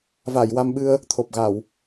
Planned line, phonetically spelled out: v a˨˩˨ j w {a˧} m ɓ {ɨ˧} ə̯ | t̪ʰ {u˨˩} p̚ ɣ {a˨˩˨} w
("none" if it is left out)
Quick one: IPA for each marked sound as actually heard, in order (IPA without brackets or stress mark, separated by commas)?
a˧, ɨ˧, o˨˩, a˨˩˨